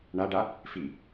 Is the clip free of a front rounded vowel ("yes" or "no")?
yes